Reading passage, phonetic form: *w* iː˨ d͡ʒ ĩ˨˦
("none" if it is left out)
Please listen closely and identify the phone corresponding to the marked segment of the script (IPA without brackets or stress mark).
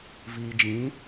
v